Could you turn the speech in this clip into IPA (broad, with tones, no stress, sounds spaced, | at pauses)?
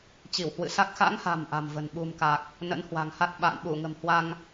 t͡ɕ i˧˩ w h w ɨ̰˧˨ s a˦˥ k̚ x a̰˧˥ ŋ h a̤˨˩ m ʔ a̤˨˩ m v ə̤˨˩ n ɓ ṳ˨˩ m k a˨˩ k̚ | n ə̰˧˥ n h w a̤˨˩ ŋ h a˦˥ t̚ ɓ a̰ː˧˨ n ɓ u˧˩ ŋ ə̤˨˩ m h w a˧ ŋ